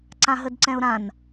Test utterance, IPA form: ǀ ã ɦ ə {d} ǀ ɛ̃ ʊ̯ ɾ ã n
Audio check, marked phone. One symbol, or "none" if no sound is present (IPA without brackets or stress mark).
d